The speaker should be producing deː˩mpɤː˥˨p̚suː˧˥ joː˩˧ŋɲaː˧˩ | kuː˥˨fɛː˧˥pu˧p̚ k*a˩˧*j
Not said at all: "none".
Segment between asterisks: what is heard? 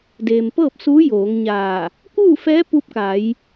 a˩˧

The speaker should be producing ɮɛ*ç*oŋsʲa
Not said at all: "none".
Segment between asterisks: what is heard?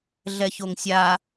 ç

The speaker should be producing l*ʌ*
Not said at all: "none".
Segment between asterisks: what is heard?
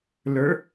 ə˞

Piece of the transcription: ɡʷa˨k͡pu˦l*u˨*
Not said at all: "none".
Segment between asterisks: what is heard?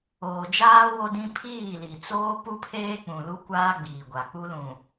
ũ˨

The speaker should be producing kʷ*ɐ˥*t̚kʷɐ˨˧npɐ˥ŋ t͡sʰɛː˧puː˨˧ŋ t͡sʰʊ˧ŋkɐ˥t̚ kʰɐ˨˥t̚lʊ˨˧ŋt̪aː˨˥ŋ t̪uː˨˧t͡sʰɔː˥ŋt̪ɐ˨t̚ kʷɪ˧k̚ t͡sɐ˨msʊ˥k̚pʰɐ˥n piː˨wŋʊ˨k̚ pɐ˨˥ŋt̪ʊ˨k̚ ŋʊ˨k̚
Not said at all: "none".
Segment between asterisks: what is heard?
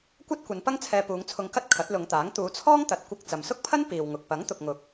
ɐ˥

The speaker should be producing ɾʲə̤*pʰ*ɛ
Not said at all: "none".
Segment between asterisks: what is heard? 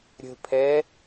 pʰ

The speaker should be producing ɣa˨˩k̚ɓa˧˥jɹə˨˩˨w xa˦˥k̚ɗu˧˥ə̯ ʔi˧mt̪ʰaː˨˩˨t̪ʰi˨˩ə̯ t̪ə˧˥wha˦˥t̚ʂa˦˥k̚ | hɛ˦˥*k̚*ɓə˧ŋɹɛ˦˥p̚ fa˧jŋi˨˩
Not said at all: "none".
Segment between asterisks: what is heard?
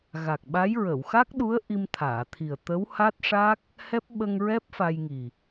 p̚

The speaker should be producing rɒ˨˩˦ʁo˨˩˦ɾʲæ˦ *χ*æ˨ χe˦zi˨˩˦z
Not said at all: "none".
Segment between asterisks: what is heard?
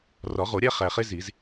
χ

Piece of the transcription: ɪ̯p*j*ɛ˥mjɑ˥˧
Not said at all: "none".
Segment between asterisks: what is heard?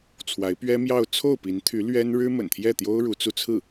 ɥ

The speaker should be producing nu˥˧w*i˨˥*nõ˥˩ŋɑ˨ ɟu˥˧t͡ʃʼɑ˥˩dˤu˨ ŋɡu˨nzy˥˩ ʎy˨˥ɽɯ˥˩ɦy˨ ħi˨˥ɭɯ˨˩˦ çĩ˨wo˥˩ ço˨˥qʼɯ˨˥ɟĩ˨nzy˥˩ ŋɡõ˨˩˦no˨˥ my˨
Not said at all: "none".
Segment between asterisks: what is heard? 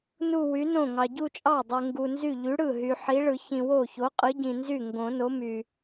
y˨˥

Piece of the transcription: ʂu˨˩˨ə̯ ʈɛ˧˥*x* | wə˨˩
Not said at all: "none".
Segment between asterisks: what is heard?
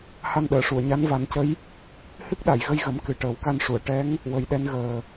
ŋ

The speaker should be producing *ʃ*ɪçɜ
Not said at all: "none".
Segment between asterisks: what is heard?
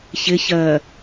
ç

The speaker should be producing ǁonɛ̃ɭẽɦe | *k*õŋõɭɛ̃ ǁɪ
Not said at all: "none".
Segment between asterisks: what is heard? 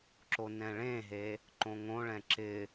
ǃ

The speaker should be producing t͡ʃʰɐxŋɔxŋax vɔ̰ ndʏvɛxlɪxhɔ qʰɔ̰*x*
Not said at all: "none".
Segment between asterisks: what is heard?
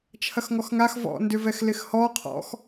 x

